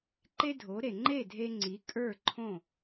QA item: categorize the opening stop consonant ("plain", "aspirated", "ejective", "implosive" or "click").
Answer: click